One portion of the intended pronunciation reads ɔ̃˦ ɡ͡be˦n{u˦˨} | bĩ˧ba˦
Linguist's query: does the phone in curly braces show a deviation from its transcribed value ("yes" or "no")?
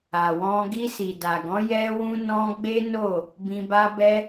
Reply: yes